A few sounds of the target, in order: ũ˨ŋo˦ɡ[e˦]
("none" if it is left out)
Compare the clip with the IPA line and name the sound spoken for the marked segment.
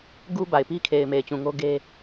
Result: e˦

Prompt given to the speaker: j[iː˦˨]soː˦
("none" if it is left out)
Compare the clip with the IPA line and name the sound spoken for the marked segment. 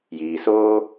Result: iː˨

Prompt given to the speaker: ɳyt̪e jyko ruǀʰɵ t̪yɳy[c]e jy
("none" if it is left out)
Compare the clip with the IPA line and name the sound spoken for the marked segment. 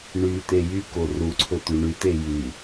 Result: t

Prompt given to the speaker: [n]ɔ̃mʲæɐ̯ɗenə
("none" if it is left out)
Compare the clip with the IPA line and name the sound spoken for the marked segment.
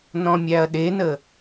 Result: n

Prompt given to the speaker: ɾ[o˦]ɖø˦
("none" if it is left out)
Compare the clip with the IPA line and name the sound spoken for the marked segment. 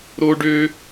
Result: o˦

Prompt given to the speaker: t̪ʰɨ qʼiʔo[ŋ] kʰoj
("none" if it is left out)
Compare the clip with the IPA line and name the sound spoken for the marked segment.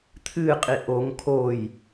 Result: ŋ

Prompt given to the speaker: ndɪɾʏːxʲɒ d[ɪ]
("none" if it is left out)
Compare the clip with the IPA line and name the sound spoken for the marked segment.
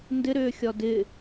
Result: ɪ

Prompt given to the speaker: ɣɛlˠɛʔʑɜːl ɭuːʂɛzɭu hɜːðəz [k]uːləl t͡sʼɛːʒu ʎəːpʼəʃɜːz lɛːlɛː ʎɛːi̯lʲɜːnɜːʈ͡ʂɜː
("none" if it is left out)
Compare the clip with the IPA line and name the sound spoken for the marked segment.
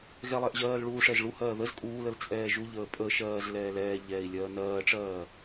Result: kʼ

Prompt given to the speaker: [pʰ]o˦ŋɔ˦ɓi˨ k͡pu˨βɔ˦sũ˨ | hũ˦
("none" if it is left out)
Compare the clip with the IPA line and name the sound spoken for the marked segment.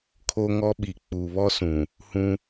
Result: kʰ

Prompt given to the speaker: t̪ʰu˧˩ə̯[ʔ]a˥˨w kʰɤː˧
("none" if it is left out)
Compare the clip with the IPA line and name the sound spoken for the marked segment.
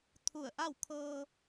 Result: ʔ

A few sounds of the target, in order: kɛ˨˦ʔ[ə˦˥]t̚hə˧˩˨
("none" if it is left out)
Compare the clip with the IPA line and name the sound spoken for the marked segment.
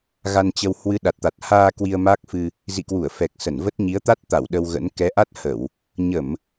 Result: a˦˥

